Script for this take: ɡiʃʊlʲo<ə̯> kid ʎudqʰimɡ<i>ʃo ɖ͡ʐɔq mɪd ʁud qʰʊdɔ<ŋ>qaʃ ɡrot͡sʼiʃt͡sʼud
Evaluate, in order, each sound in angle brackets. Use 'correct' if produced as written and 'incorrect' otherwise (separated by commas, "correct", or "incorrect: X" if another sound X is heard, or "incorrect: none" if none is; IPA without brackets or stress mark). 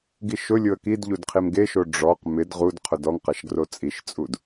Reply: correct, incorrect: e, correct